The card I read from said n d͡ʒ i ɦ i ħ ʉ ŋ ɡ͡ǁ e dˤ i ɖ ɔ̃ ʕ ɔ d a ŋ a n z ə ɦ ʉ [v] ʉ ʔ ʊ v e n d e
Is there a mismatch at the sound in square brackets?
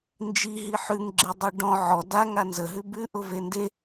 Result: yes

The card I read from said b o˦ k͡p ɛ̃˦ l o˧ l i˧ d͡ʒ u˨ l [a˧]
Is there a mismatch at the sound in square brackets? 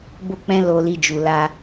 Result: no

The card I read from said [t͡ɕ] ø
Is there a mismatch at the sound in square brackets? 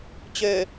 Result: no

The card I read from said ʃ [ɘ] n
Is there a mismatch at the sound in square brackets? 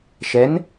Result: yes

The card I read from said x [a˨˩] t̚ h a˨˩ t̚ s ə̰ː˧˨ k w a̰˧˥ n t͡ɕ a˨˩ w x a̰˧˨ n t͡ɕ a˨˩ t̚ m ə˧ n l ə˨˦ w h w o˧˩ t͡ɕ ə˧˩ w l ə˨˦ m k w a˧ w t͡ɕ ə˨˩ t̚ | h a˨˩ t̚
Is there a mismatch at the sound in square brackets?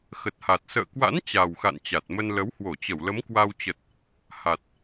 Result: yes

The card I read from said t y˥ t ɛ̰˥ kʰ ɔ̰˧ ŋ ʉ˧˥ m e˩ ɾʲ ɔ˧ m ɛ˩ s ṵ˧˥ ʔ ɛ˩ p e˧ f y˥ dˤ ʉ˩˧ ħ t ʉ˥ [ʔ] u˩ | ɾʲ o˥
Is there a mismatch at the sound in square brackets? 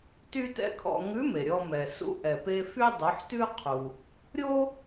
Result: yes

